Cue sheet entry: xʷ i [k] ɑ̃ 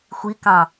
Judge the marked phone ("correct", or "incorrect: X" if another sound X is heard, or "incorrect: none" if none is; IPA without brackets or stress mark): correct